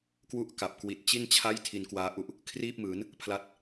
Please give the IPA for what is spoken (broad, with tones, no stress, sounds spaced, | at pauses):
k w u˥˩ ʔ k a˨˩ p̚ k w i˨˩ t̚ t͡ɕ i˥˩ n t͡ɕʰ a˥˩ j tʰ i˧ n k w aː˦˥ ʔ u˥˩ ʔ | kʰ r iː˥˩ p̚ m ɯː˩˦ n | pʰ l a˦˥ t̚